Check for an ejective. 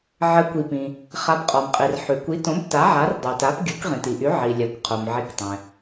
present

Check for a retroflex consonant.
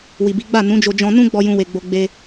absent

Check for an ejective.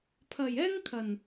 absent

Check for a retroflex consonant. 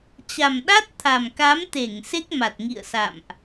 absent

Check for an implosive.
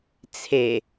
absent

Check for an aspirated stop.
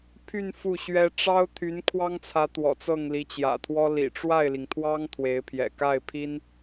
present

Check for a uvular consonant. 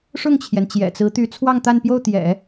absent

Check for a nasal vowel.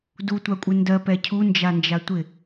absent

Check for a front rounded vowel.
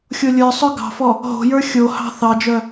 present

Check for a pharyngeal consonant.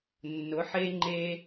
present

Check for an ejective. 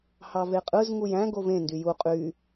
present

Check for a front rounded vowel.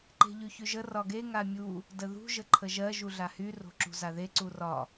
present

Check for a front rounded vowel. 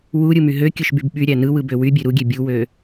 present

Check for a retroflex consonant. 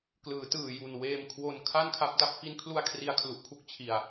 absent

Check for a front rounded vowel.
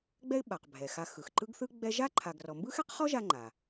absent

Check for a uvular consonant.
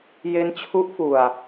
absent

